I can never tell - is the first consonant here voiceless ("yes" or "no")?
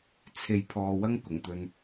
yes